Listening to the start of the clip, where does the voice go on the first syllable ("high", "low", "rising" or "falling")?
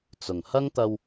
low